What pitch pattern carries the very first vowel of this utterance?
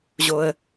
low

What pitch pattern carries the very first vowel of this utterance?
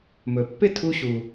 low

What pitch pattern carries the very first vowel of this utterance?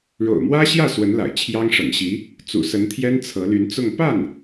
low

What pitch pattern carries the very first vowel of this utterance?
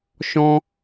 high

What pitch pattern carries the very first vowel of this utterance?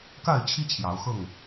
falling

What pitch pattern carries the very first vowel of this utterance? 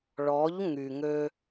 rising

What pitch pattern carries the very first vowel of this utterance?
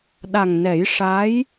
low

